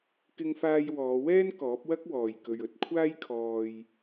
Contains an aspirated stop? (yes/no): yes